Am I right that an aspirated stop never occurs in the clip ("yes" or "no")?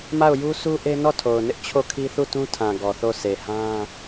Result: no